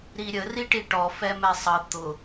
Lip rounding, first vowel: unrounded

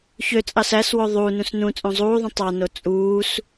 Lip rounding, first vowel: rounded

